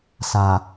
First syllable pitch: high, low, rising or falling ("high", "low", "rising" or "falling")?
low